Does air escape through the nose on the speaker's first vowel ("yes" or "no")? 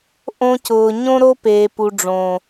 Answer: yes